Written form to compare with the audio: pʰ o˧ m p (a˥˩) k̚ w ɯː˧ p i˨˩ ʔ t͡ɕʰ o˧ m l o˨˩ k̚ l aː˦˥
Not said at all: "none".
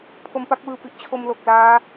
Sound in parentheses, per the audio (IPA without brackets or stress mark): a˥˩